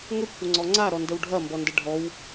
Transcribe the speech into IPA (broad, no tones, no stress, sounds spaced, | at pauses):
ŋ ə kʷʰ ə ŋ͡ǀ ɔ ŋ͡ǀ a ɾ ɔ n d ə w ɖʱ ɐ m b ɔ n d ə ɖʱ ɔ w